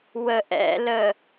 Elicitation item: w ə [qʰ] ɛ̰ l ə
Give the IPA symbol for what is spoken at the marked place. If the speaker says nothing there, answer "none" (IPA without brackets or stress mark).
ʔ